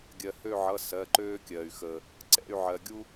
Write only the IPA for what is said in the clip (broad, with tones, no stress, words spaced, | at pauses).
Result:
ɡʲɜ˩hø˦˨ʕʌ˩˧˩ sɜ˩˧˩ǃøː˦kʲɜː˩y̯xəː˩ | ǀɛ̰˦˨y̯ʕɜ˩ɡʲu˦